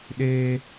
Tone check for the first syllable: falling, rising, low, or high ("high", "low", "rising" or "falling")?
high